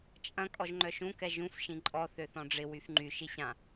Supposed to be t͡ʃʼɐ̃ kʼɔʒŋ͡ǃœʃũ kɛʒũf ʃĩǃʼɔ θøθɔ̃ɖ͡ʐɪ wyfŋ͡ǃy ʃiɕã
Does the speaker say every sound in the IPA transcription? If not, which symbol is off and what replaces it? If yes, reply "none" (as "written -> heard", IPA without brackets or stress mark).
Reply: none